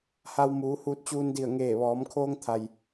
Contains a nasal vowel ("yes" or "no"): no